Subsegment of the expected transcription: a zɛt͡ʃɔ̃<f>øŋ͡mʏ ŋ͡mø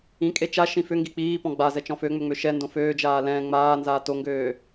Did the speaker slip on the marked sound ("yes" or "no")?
no